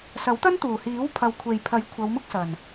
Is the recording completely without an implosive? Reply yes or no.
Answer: yes